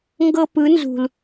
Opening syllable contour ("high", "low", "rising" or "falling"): high